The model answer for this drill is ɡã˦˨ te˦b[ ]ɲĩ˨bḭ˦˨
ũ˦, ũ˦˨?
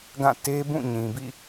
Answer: ũ˦˨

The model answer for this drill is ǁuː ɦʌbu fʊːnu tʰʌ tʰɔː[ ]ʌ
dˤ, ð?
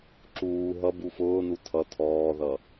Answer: ð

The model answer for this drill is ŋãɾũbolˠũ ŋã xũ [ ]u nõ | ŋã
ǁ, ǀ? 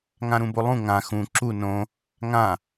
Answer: ǁ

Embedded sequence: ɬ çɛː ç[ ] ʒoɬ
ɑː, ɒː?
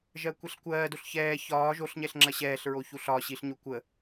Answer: ɒː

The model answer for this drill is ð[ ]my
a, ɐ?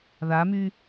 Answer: a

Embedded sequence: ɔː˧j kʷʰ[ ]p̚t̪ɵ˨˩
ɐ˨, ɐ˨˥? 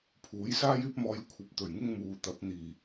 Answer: ɐ˨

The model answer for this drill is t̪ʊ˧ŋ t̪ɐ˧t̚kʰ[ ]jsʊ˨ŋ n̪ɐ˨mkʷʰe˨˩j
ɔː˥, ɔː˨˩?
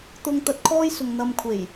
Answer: ɔː˥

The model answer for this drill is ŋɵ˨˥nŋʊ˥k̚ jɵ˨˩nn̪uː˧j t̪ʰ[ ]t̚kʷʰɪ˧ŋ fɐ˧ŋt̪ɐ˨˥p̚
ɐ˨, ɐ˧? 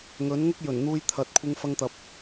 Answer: ɐ˨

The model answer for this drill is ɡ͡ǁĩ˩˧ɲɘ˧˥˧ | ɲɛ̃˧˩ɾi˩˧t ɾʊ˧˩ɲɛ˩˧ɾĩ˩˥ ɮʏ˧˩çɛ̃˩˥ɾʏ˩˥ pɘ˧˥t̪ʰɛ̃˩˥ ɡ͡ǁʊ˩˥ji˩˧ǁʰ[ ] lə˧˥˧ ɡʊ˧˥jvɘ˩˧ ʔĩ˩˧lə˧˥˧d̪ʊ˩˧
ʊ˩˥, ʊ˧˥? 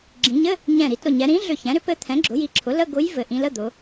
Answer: ʊ˩˥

